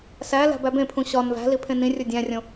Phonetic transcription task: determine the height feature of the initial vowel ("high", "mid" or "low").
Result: low